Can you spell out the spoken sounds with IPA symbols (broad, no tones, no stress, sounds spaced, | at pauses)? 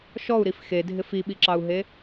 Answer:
ʃ ɔ u̯ ɾ i f x e dʱ ɪ f i ɓ i ǁ ɑ u̯ ɦ e